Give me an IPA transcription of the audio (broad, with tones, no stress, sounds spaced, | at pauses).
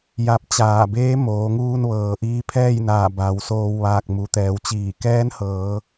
j a˧ p̚ t͡ɕ aː˧˩ b eː˧˥ m oː˩˧ ŋ uː˧ n ʋ ɤː˩ ʔ iː˧ pʰ ɛː˥˨ j n aː˧˩ b a˩˧ w s oː˧ w ʋ aː˧˩ k̚ m u˩˧ t̪ ɛː˩˧ w t͡ɕ iː˧˩ k ɛː˧˥ n h ɤː˩˧